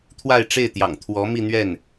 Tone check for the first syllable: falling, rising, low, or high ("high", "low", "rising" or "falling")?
falling